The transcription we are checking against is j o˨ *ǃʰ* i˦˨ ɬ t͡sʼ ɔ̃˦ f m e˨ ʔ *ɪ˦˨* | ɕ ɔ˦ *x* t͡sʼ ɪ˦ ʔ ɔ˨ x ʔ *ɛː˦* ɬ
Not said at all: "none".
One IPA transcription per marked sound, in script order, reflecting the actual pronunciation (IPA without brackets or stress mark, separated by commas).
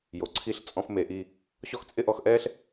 ǀʰ, i˦˨, x, ɛː˦